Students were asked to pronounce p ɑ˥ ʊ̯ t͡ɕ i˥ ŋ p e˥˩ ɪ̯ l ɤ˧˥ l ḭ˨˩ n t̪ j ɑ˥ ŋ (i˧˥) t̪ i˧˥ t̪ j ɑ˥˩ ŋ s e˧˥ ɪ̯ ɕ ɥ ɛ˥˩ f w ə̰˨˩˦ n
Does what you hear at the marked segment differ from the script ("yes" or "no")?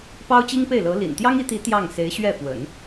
no